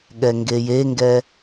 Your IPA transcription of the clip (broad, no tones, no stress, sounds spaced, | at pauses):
ɠ ɛ ŋ ɡ e j e ŋ ɡ ɛ